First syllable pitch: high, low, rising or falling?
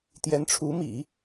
rising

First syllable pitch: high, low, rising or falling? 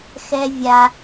high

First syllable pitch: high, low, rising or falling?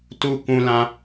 high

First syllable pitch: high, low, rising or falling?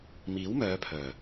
rising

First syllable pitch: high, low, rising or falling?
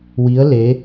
rising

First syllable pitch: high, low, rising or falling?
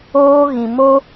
high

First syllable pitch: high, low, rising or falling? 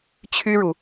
high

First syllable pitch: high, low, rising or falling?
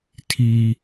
high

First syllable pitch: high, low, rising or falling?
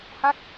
falling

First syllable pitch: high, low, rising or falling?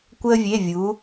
high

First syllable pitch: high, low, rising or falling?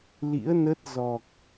rising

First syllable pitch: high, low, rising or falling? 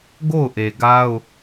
falling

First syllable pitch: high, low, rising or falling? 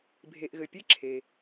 low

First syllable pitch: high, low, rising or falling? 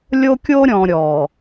high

